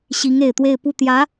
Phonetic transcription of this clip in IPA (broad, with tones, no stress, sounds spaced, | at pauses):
ɕ i˧˥ ŋ e˨˩ ɪ̯ t̪ w e˥˧ ɪ̯ p u˥˩ t̪ j ä˧˥